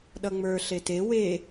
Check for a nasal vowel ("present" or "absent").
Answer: absent